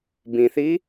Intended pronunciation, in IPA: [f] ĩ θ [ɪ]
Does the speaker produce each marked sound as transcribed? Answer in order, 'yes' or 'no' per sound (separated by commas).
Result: no, no